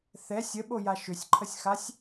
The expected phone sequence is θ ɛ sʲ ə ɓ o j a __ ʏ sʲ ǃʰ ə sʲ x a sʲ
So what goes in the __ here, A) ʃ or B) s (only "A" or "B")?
A